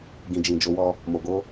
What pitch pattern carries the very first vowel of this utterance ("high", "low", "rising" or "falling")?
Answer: low